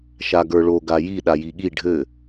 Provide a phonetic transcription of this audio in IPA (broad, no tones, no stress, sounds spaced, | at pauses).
ʃ a ɡ ə˞ ɭ o ɡ a j i ɗ a j i ɠ i ɖʱ ɘ